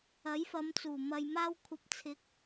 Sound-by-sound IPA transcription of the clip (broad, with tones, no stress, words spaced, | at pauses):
ɐ˨˥jfɐ˨˧mt͡suː˨˩ mɐ˨jmaː˧wkʷʰɐ˨˥p̚ t͡sʰɪ˨˥k̚